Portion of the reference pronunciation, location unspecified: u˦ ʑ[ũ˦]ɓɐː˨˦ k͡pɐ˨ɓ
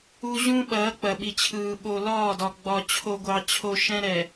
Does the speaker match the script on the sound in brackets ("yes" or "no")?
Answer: yes